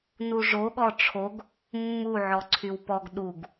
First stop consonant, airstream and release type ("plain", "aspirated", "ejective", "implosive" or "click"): implosive